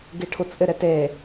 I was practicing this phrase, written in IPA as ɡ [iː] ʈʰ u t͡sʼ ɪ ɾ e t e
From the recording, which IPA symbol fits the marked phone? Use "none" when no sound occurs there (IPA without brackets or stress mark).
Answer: i